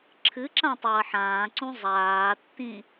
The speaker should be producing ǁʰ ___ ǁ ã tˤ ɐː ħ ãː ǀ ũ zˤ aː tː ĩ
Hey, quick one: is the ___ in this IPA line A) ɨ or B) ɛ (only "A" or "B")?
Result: A